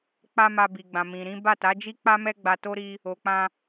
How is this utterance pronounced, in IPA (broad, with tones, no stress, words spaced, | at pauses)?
k͡pa˦ma˧bi˨ɡ͡bã˨ mĩ˨ɾĩ˨˦ ba˦˨ta˨˦d͡ʒi˦k͡pa˦ mɛ˦ɡ͡ba˧to˦ ɾi˦ | o˨k͡pã˧